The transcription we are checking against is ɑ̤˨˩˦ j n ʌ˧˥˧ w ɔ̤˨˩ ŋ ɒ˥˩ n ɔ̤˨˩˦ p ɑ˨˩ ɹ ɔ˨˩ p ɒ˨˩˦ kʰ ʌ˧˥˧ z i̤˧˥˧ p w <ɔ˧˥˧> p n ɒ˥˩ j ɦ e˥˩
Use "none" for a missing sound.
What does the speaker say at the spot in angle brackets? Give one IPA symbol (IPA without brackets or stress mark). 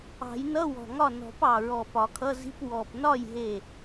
ɔ˨˩